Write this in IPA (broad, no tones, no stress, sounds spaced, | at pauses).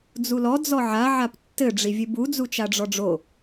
d͡z u l ɔ d͡z ɔ ʕ a ʕ a p tː ɘ ɖ͡ʐ i vʲ ɨ b u d͡z u t͡ʃ a ɖ͡ʐ ɔ ɖ͡ʐ o